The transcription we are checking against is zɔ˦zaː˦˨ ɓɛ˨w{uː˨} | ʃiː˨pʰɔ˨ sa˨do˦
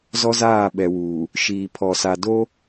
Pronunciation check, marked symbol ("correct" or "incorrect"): correct